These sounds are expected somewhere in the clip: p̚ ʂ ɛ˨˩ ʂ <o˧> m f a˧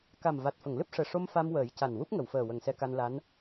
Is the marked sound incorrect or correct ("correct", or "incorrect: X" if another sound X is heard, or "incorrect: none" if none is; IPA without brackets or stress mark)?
correct